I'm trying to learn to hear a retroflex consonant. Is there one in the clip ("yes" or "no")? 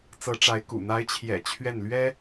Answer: yes